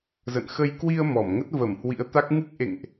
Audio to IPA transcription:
zə̰˧˨nxə˧j kwi˧ə̯ mɔ˧˩mŋə˦˥t̚ və˧˩m hwḭ˧˥ə̯t̪a˦˥k̚ ŋɨ˦˥k̚ʔḛ˧˨ŋʔ

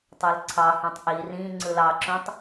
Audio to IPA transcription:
tˤølǀʰɑhũtˤ ʔi rĩ ŋ͡ǀɯlɑǁũtˤ

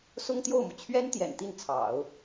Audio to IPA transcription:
sʊ˥ŋt̪jo˥˩ʊ̯mu˩ t͡ɕʰɥɛ˥n t̪jɛ̰˨˩nt̪i˥˩nt͡sʰɑ̰˨˩˦ʊ̯

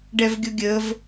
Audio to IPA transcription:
ɖɛvɡʲʊɡʲəv

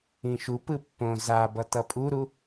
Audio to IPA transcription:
ĩʃupɯ pːõ zabʌ tʌpʼuɾu

